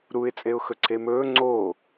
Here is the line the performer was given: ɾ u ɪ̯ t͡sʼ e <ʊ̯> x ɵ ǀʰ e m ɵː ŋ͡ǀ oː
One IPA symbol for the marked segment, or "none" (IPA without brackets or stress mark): ʊ̯